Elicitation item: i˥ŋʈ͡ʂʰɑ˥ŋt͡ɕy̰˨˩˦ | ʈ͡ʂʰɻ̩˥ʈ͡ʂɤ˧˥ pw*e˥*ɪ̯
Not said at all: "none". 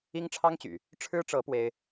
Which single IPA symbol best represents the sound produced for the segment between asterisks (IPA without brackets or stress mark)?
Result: e˥